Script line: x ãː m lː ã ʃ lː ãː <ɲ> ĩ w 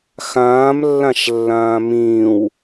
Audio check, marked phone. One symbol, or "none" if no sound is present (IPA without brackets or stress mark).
m